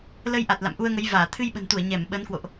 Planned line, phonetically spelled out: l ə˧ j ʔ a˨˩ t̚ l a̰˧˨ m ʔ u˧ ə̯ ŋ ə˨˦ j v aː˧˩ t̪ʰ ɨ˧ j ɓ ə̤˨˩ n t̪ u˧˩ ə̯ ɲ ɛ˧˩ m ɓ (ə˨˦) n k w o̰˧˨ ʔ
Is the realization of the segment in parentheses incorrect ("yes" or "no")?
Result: no